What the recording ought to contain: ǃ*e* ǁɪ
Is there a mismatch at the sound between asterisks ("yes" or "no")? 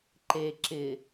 no